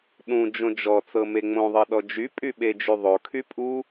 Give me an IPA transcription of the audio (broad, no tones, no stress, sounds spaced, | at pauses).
ɗ ũ d͡ʒ õ d͡ʒ ɔ t͡s ɤ m e ŋ͡m õ ðˤ ɤ ɗ ɔ d͡ʒ y pʼ y ɓ e d͡ʒ y ðˤ o kʰ y pʼ u